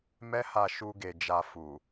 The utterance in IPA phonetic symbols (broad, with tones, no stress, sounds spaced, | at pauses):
m ɛ˦ h a˧ ʃ u˧ ɡ e˨ d͡ʒ a˧ f u˨